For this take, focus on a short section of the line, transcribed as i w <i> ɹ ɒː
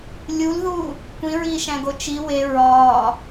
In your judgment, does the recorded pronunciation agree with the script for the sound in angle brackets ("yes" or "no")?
no